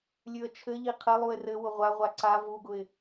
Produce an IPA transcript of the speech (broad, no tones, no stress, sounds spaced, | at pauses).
lʲ ʉ ə̯ t͡ʃʰ ɘ ʎ i qʰ ɘ lˠ u ɪ̯ r ɘ w ʊ ʁʷ a ʁʷ a ǀ a v u ɡ ʊ ɪ̯